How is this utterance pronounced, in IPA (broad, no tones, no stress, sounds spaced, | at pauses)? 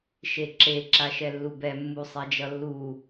ʃ e ǁ e ǁ a ʃ ɛ lː u b ɛ mː u sˤ ɛ d͡ʒ ʌ lː u